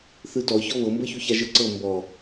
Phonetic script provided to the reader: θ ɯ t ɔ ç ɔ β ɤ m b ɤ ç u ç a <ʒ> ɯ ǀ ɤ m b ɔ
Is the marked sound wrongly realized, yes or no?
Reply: no